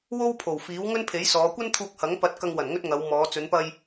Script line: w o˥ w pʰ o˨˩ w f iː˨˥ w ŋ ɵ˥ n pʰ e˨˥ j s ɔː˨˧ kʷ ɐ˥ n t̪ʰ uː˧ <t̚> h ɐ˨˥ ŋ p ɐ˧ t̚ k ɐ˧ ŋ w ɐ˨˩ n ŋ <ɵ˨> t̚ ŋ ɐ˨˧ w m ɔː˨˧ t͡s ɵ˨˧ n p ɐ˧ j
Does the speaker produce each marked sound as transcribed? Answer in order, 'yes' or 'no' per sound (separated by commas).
no, no